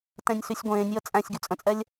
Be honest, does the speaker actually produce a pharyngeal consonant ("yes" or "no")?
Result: no